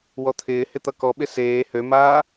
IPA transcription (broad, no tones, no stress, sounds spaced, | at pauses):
w ɔ t̪ʰ ɪː h ɪ t̪ ʌ k ɔ ɓ ɪ s eː h ø m aː